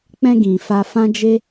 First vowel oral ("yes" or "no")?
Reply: no